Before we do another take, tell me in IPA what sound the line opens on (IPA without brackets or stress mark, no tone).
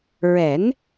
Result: ɹ